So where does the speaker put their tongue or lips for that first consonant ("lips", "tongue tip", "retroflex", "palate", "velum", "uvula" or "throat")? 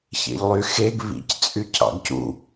palate